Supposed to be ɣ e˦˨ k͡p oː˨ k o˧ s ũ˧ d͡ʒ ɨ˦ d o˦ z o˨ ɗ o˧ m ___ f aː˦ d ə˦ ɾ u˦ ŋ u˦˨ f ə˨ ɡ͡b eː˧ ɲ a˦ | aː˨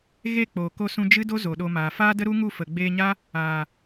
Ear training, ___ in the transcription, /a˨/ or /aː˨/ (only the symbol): aː˨